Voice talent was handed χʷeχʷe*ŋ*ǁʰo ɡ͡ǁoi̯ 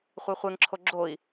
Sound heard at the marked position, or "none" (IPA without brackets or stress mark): ŋ